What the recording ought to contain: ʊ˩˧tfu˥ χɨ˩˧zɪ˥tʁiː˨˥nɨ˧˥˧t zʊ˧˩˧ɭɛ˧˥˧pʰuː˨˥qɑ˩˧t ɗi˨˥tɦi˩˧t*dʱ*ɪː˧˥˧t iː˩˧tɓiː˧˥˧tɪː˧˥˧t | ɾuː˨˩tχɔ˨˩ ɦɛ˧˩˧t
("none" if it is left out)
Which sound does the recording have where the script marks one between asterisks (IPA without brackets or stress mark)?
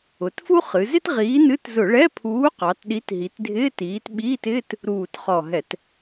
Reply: dʱ